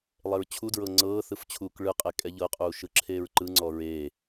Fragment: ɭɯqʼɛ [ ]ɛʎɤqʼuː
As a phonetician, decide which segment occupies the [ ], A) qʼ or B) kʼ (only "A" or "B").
B